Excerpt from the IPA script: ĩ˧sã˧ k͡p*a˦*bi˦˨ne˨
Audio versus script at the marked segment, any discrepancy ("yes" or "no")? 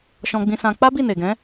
no